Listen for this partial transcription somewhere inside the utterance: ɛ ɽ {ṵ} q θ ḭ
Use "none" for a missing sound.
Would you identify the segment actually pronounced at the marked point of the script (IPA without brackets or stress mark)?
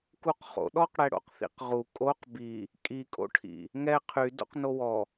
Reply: o̰